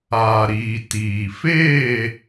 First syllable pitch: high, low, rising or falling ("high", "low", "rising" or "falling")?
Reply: low